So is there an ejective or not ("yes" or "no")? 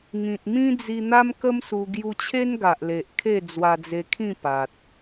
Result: no